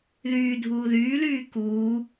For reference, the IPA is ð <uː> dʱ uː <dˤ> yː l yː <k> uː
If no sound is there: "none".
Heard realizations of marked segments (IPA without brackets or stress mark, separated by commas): yː, ð, k